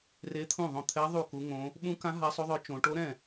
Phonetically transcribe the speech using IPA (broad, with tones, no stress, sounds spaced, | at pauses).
r e˧˥ t̪ʰ ũ˥˩ ðˤ õ˥˩ t̪ʰ ɛ˧˥ ðˤ u˥˩ k u˧˥ ŋ õ˧˥ | ɓ ũ˧˥ k ã˧˥ ɦ a˧˥ sˤ o˧˥ ðˤ œ˧˥ t͡ʃ õ˧˥ ʈ o˧˥ ɾ ɛ̃˥˩